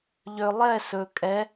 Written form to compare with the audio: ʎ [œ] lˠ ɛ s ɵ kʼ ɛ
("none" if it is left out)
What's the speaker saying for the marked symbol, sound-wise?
ø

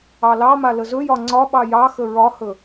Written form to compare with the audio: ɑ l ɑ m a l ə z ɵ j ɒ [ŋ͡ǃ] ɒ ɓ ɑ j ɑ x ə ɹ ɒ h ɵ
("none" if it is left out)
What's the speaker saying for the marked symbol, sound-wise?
ŋ͡ǀ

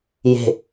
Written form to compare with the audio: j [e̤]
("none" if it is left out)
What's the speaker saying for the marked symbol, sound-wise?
e̤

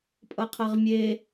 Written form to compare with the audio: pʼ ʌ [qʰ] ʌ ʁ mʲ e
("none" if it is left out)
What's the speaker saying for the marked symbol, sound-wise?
qʰ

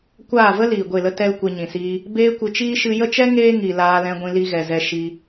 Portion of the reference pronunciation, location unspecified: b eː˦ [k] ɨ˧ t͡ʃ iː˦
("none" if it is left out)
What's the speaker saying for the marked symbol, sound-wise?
kʷ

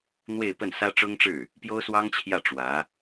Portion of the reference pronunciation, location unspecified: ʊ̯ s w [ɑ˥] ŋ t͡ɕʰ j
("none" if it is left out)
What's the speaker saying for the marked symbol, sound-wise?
ɑ˥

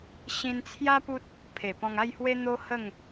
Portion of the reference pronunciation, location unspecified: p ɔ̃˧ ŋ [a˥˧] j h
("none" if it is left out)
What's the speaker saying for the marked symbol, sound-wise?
a˥˧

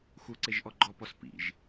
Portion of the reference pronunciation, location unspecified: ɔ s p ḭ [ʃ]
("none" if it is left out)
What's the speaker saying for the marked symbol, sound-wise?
ʒ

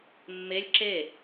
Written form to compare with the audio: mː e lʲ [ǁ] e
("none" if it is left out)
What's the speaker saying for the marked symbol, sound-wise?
ǁ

